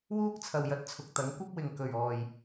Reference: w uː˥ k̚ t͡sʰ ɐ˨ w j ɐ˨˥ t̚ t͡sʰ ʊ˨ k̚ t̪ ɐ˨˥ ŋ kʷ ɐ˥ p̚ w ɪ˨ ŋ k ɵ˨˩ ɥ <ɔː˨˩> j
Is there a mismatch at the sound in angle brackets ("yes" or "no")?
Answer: no